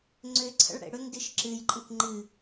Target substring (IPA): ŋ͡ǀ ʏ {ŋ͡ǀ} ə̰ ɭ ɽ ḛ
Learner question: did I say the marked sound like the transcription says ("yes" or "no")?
no